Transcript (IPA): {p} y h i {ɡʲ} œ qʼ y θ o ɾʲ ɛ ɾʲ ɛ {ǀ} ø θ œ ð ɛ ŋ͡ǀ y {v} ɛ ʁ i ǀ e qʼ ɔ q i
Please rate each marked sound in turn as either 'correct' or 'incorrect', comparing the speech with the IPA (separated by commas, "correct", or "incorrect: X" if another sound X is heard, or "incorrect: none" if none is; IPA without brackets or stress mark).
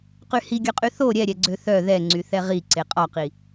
incorrect: q, correct, incorrect: ɡ͡ǀ, incorrect: θ